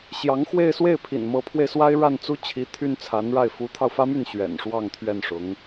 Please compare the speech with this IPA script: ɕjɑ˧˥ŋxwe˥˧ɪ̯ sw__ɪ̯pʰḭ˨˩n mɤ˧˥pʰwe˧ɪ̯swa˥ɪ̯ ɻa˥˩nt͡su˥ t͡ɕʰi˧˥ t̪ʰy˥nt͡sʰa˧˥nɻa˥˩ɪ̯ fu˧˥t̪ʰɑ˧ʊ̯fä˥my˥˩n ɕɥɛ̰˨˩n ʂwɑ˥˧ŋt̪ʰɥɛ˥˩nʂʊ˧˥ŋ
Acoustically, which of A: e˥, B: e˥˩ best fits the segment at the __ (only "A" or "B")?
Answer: B